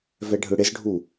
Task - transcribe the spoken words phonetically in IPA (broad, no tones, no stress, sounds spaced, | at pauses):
v ɛ ɖʱ ɯ ɽ ɪ z ɖʱ u